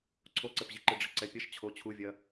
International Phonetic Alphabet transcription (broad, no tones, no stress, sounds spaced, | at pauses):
ǀʰ o ǀ ɘ p ʑ i ǃ ɨ ɖ͡ʐ ɘ ǀ ɛ pʲ ɐ ʃ t͡ɕʰ o t͡ɕʰ u vʲ ɐ